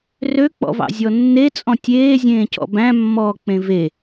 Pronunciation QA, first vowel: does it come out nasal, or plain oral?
oral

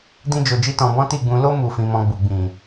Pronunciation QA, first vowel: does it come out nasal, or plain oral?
nasal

